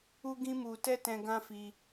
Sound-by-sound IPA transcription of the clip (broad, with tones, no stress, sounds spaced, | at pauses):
u˦ ɡ ĩ˦ m u˧ t ɛ˦ t ɛ̃˧ ɡ ã˦ f i˧